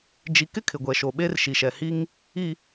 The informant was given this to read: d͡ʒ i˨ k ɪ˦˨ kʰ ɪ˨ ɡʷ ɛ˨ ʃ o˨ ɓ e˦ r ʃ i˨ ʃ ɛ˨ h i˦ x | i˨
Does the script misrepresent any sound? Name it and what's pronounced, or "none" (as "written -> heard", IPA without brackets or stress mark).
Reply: x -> ŋ